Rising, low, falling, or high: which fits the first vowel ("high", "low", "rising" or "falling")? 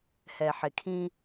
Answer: low